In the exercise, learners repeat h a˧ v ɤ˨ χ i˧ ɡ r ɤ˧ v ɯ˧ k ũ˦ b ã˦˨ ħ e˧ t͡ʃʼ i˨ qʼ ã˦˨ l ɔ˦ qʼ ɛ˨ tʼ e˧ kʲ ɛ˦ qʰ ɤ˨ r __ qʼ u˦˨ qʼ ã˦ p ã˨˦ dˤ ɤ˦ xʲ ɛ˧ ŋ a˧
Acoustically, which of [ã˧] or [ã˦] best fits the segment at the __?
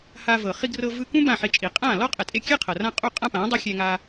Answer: ã˦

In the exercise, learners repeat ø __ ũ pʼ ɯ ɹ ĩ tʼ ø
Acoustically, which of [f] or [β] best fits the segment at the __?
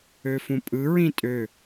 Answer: f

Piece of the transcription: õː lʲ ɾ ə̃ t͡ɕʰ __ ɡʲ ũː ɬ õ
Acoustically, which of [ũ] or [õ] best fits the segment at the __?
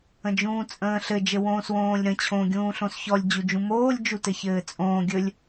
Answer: õ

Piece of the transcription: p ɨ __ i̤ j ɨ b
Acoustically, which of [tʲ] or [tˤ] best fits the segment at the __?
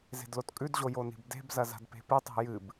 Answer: tˤ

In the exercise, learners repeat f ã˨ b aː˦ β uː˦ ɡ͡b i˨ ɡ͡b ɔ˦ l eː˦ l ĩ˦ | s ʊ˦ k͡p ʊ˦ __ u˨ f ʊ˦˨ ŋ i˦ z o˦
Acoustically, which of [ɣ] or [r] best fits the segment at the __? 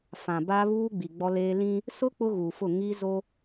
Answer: ɣ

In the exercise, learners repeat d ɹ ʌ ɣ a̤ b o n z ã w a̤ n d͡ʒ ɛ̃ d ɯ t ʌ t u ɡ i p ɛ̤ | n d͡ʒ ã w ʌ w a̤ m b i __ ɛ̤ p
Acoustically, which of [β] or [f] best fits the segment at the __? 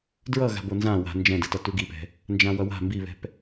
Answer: β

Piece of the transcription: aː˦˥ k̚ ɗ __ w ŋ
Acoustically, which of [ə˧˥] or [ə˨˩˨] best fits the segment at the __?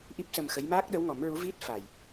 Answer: ə˧˥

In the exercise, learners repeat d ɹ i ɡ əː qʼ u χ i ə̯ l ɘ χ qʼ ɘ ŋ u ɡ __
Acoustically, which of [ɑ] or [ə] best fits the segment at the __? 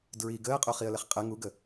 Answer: ə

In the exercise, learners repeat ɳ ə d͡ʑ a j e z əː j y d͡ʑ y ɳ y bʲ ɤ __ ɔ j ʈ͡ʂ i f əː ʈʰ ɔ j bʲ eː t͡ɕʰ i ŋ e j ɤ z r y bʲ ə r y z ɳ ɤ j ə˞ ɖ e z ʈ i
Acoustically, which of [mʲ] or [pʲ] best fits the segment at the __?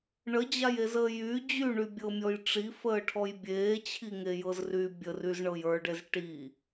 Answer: mʲ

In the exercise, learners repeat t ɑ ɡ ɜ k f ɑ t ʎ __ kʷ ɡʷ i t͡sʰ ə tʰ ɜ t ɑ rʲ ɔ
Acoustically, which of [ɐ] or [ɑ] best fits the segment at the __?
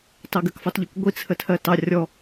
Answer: ɐ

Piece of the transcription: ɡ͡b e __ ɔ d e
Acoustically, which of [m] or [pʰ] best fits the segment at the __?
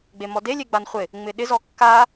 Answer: m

